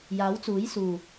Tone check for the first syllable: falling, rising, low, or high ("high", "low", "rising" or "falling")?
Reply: rising